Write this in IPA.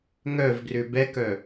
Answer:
ŋ œ v ɡ r ʏ b ɛ k œ

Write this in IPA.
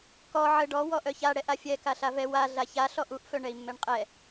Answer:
k ɔ ʕ ə ɖ ɔ w ɔ ʔ œ ç a ɽ ɛ ʔ a fʲ ɛ k a ɬ a v ɛ w a ɮ a ç a ɬ ɔ ʔ u ʔ f œ ɳ ɛ i̯ mː ɛ ɳ qʼ ɛ

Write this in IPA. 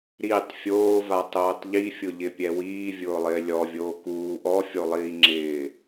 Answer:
ɾ i tˤ fʲ oː v a tˤ oː tˤ ʎ i fʲ ʊ ʎ ɪ pʲ ɛ w iː vʲ ʊː lˠ ɪː lʲ ɔ vʲ oː k uː ʔ ɔ fʲ o lˠ iː ŋ͡ǁ ɪː

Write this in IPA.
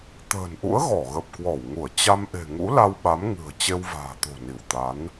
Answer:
t̪ ə̤ː˨˩ n ʔ ṵ˧˥ ə̯ ɣ ɔ˧˩ ɣ ə˨˩ p̚ k w ɔ˧˩ w ŋ u˧˩ ə̯ t͡ɕ a˧ m ʔ e̤˨˩ ŋ ṵ˧˥ l a˧ w ɓ a˨˦ m ŋ ɨ̤˨˩ ə̯ t͡ɕ e˧ w v a̤ː˨˩ t̪ o̤˨˩ n i˧˩ w t̪ a˨˦ n

